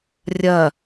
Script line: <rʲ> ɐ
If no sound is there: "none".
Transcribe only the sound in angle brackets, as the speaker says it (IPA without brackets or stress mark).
rʲ